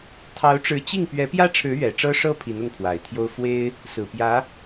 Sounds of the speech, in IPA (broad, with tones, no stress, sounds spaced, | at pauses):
t̪ʰ ɑ˧˥ ʊ̯ ʈ͡ʂ ɻ̩˧˥ t͡ɕ i˥˩ ŋ p ɥ ɛ˧˥ p j ä˥ ʈ͡ʂʰ ɻ̩˧˥ ɥ ɛ˨˩ ʈ͡ʂ ɤ˥ ʂ ɤ˥ pʰ i˧˥ n ʊ˥˩ ŋ pʰ w a˨˩ ɪ̯ t̪ʰ j o˥ ʊ̯ f w e˥ ɪ̯ | s ɹ̩˨˩ p j ä˧˥